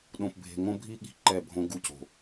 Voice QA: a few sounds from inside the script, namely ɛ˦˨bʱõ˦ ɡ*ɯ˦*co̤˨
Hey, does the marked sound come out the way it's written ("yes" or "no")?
no